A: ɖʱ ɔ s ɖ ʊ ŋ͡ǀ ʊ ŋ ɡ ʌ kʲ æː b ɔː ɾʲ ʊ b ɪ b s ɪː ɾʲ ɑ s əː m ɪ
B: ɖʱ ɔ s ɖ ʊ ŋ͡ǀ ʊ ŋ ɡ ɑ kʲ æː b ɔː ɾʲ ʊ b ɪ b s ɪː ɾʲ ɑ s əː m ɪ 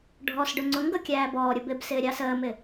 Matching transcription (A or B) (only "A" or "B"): A